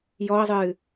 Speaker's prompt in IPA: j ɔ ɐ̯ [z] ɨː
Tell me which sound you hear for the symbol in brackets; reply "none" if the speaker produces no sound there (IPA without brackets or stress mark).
zˤ